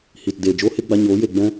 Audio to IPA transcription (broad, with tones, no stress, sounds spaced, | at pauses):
h i˨ t d eː˨ d͡ʒ oː˦ h e˦ ɡ͡b a˧ ɲ oː˨˦ j e˨ ɡ͡b ɛ̃˦